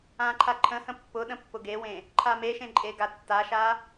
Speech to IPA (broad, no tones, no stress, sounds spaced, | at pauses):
ã ǃʰ a ǃʰ ə̃ h ə̃ pː ʊ ɗ ə̃ pː ʊ ɡ e w ẽ | ǃʰ a m e ʃ ẽ ǃʼ e ɡ a tː a ʃ a